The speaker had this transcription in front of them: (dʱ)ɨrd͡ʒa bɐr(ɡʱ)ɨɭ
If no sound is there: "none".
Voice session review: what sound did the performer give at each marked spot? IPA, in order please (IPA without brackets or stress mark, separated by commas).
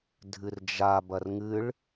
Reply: dʱ, ŋ